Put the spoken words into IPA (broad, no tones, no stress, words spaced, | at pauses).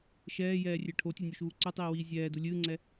ʃɛːjɛːrʲe ʈʰotʲonʲuʃuː ǀotˤiːwiː zʲɛːdu lʲɨːŋ͡ǀɛ